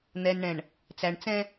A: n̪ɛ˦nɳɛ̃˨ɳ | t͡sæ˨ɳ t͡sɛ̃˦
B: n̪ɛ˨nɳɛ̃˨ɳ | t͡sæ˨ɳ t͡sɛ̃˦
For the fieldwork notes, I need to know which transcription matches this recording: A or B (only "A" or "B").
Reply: B